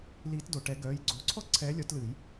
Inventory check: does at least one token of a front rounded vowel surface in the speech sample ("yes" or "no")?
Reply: yes